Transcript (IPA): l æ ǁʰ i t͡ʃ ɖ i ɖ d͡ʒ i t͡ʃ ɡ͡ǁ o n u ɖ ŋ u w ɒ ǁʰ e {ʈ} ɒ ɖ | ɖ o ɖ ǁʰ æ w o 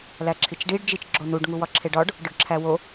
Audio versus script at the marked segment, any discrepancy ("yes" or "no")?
yes